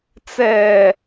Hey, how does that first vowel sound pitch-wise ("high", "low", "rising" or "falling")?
low